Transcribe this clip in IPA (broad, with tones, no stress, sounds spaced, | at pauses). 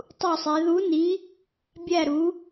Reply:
tˤ u˥˧ sˤ e˧˥ ð u˧˥ n i˧˥ | bʲ æ˥˧ ɾ u˧˥